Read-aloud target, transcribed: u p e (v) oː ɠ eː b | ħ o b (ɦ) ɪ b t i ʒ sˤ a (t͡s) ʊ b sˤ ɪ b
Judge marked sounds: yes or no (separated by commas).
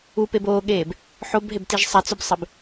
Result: no, yes, yes